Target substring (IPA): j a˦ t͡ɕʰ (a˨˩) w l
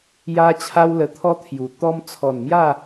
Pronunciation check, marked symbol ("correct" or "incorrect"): incorrect